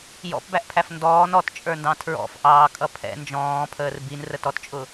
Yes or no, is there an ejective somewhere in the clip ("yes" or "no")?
yes